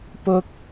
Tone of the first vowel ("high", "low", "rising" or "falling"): low